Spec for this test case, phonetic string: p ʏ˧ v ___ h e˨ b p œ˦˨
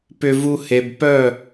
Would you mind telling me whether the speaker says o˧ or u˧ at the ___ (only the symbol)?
u˧